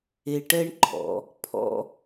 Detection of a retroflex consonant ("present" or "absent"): present